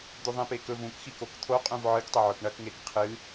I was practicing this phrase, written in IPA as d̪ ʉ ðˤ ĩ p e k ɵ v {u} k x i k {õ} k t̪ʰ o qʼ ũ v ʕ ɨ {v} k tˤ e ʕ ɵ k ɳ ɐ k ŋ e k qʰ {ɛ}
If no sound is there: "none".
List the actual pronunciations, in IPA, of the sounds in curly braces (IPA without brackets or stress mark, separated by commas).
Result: ũ, o, none, ɨ